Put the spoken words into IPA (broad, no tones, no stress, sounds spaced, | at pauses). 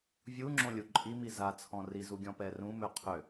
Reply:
vʲ u ŋ͡ǁ õ lʲ u ǃʼ i m i z a t͡sʰ ɔ̃ r i z u ɡʲ ɔ̃ p ɛ r ũ m ø qʰ ø